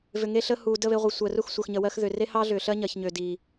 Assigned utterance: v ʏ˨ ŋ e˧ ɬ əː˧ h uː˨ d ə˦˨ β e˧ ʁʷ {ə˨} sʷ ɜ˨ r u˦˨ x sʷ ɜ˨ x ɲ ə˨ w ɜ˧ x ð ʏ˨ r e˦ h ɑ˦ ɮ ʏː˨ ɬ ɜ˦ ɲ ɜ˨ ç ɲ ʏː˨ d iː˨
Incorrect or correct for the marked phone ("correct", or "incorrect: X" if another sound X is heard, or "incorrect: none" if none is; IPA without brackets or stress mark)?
correct